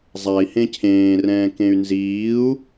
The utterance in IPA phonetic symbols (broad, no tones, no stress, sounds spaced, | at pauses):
zˤ a i̯ h ẽ cʰ ẽː r ɛ̃ː k ẽ y̯ n z iː u̯